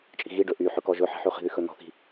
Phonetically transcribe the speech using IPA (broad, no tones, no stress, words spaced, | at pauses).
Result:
t͡ʃʼi̤ɣiɖɵ ʔy ħɵkɔʒɵ ħi̤ħʉχi̤ðy xɵnɔ̤θi̤